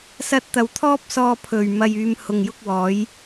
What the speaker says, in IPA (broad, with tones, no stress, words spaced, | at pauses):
sɐ˧t̚t̪ɐ˨˩wt̪ʰɔː˥p̚ sɔː˧pʰɵ˨˩ɥmɐ˨jyː˨m hʊ˨˩ŋjʊ˧k̚ wɔː˨˥j